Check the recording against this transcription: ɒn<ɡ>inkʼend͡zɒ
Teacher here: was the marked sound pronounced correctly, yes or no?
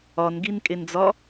yes